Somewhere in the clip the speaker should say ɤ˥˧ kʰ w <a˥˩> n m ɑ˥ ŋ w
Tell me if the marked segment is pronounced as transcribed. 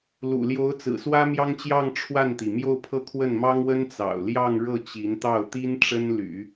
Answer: no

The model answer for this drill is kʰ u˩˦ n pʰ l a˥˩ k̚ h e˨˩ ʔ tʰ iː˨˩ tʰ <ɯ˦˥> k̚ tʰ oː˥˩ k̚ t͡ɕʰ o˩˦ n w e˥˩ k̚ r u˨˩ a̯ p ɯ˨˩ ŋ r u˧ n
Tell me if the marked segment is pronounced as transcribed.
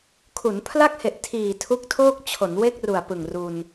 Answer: no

